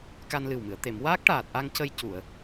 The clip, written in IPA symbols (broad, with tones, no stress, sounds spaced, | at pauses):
k a˧ n l ɨ˨˩ w m ɨ˨˩˨ ə̯ t̪ e˨˩˨ m w aː˦˥ k̚ ʈ aː˨˩ t̚ ʔ a˧ ŋ c ə˧ j c u˨˩˨ ə̯